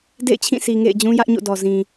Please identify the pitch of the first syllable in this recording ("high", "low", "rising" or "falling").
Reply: falling